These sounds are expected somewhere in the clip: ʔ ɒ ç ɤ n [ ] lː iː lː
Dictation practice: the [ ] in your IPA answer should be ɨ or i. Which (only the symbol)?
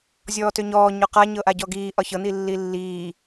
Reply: i